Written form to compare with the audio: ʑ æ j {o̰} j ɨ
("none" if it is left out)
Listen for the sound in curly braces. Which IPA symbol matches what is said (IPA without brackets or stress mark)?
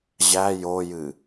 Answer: o